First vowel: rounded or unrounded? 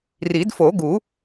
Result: unrounded